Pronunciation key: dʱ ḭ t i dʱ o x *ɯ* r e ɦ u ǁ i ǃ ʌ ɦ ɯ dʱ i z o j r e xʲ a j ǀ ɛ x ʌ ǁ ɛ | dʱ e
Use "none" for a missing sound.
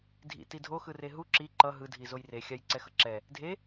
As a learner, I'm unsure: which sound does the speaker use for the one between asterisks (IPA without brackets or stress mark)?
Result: ɯ